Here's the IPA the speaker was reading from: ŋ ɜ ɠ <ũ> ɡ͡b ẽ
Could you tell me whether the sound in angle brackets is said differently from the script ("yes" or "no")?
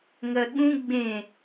no